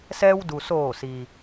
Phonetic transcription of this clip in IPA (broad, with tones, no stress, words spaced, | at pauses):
sɛː˧wdu˩soː˧˩si˩